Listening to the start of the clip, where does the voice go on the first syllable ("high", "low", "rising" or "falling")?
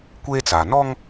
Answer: high